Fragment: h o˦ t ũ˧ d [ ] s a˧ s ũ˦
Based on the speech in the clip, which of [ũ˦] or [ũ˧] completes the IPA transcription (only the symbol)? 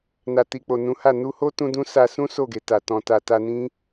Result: ũ˦